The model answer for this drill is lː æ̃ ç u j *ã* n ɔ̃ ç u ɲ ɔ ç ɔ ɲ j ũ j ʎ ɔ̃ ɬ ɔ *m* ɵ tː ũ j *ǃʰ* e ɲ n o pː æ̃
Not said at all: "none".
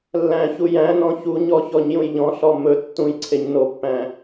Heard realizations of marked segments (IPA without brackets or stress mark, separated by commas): æ̃, m, ǀʰ